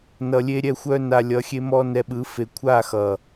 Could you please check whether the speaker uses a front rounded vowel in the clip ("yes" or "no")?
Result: yes